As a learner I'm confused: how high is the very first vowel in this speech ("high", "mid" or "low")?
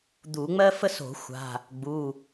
high